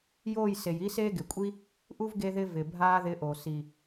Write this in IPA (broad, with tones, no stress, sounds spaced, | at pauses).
j oː˦˨ j s e˨ j i˦ s eː˦ ɡ ɪ˨ kʷʼ i˦ | ʔ u˦ v ɡ e˧ ð ɪ˧ v ɪ˨ bʱ aː˦ ð ɪː˧ ʔ o˨ s i˨